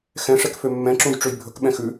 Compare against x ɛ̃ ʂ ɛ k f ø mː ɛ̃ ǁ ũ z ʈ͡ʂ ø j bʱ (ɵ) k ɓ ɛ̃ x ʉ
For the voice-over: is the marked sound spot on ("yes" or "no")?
yes